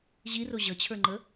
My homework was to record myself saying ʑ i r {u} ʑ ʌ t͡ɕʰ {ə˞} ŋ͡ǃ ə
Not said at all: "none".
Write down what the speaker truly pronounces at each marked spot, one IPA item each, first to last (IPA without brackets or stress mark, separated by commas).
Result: o, ə˞